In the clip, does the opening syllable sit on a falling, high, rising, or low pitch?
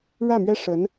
falling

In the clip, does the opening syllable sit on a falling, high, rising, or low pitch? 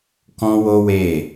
high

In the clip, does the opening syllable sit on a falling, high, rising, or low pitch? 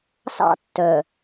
high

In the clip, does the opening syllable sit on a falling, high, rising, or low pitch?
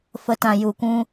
low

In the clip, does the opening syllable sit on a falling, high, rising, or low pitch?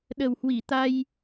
low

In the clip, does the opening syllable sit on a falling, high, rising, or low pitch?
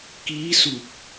rising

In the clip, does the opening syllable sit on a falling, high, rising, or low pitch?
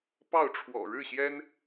falling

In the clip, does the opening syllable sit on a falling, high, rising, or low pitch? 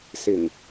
low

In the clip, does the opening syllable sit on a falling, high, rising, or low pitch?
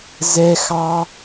high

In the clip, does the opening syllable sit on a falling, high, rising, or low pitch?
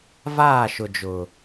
falling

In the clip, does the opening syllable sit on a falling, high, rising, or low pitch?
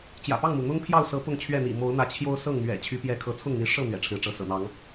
low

